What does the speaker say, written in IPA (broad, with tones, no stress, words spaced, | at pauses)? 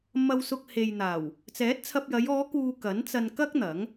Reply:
mɐ˧wsʊ˧k̚ he˨jn̪aː˨˩w | t͡sɛː˨˥t̚t͡sʰɐ˧p̚jɐ˨˧j ɔː˨˧kuː˨ kɐ˨˥nt͡sɐ˧n kɐ˥k̚ n̪ɐ˨˥ŋ